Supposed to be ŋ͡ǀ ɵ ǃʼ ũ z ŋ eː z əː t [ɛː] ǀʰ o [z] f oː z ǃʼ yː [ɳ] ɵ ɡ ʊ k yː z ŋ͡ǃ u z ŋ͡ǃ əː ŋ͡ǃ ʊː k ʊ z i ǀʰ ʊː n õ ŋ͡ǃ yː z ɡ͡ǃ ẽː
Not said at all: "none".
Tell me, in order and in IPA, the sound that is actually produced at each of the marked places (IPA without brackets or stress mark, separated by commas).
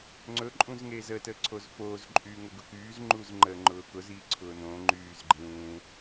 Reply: əː, z, ŋ